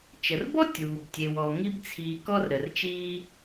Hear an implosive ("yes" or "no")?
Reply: no